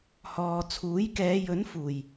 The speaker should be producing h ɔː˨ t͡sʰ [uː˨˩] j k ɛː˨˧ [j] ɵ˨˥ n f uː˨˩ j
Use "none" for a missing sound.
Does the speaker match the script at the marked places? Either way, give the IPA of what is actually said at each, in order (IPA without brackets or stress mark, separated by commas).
uː˨˥, j